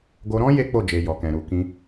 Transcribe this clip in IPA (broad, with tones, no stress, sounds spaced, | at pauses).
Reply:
ɡ o˧ ɾ ɔ̃˦ j e˦ k͡p o˦˨ d͡ʒ e˨ j ɔ˨ k ɛ̃˨ ɾ u˨ k ĩ˧